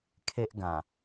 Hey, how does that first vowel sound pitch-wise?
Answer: high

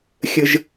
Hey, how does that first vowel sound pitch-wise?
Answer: high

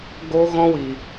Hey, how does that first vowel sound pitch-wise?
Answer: high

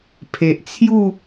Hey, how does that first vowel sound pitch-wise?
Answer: low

